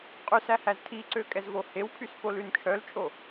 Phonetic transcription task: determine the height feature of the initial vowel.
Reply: high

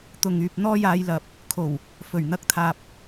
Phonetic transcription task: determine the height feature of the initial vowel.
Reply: high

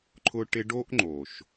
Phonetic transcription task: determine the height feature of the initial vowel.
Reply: high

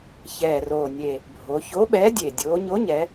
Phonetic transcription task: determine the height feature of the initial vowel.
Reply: mid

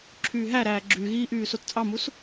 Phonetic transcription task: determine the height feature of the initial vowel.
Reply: high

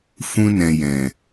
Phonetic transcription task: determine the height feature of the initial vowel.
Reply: high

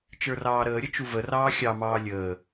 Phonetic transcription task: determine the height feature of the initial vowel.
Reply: mid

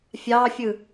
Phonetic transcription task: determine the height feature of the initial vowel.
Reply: low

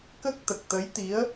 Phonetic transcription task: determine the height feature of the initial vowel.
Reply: mid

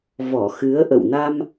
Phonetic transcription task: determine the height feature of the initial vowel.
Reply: mid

